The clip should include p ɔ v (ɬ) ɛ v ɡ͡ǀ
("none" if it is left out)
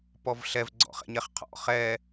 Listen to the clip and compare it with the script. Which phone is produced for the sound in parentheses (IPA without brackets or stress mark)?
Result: ɬ